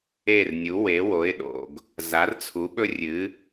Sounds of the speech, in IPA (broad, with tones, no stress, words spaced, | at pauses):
e˥˩r nʲu˩˥we˩˥wo˩˥ɪ̯ɗo̰˩ɡ | za˩˥rt͡sʰu˩˥ɓɵ˥rʲɨ˩˥